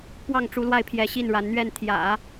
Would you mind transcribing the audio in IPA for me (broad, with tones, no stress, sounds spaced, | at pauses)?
p w ɑ˥˩ ŋ ʈ͡ʂ u˧˥ l w a˥˩ ɪ̯ pʰ j ɛ˧˥ ɕ i˥˩ n ɻ a˧˥ n n̪ ɥ ɛ˥˩ n t̪ʰ j ä̰˨˩˦